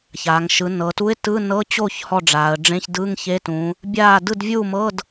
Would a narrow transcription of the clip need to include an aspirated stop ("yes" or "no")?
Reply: no